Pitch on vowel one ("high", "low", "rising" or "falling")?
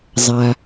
low